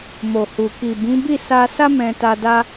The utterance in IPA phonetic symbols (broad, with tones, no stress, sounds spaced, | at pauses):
m o˨ h u˨ k i˨ b ĩ˨˦ b i˦˨ s a˧ s a˦ m ɛ̃˧ t a˧ d a˦